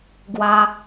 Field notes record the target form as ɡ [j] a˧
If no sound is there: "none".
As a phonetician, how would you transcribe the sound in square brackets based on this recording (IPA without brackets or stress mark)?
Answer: w